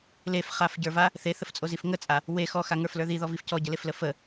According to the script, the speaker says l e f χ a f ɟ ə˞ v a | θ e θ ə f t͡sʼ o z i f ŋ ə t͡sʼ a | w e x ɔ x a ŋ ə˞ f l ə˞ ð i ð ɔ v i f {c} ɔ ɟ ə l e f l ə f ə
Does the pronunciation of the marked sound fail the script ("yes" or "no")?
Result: no